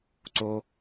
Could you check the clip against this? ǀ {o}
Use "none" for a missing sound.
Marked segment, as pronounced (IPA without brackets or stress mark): o